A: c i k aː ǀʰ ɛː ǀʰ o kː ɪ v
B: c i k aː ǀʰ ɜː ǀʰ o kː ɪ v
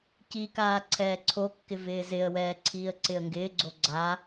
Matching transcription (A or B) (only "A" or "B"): A